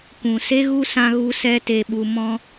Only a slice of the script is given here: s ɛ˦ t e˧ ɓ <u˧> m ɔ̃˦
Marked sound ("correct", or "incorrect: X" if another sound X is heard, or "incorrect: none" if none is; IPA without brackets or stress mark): correct